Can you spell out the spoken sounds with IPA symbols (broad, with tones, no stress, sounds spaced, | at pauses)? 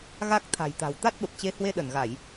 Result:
ɣ a˦˥ k̚ t̪ʰ a̤˨˩ j t̪ a̤˨˩ w t̪ a˦˥ t̚ ɓ ə˨˩ p̚ t͡ɕ e˨˦ h w e˧ ɗ ə˧˩ n ɣ a˧˩˨ j